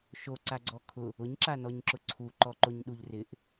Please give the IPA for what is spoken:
ʃoǀaɡ͡ǀɔ kʰʊ | ʊɲǁanɔɲǁʊ ǀʰuǃɔǃoɲɗuʎ rɪʔ

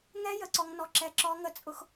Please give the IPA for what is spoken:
ŋɛ˦ jə˦ǀɔ˦ŋnɔ˦ǁɛ˦ ǁɔ˦ŋə˦t͡sʼʊ˦x

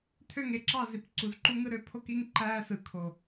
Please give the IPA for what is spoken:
tʰø˦˨ŋe˨ǁɑ˦˨ zi˨pǀu˨zǃu˦ŋɯ˦ ɾø˨pʰo˦k i˦ŋǃæː˦sɯ˨ kʰo˨

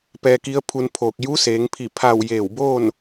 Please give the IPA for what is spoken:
pɛː˧ki˧˥ə̯pʰu˧npʰoː˧˩k̚ ju˧˥seː˩˧ŋpʰi˧˩ pʰa˧˩w jeː˧˩wboː˥˨n

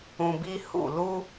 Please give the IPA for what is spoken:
ũ˧bi˦ hṵ˦˨lu˦

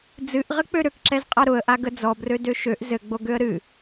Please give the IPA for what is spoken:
d͡zɨʔʁɘ k͡pøɾøkǁɛz qʼaɾʊə̯ʔa ɡəd͡zɔ brødøʃøʔ zɘɡ͡bo ɡøə̯ɾɨ

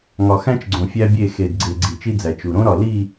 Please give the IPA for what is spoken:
ŋɒ˨xæ̃˦t͡ʃɡ͡ǀõ˨ fʲæ˦bʲe˦˨ xe˨dɡ͡ǀe˨ ɡ͡ǀi˨t͡ʃi˦d͡zæ˨ t͡ʃu˨ ɾõ˦ɾɒ˨ li˦˨

